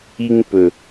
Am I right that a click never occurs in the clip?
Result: yes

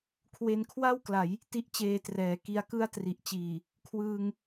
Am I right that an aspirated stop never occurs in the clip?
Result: no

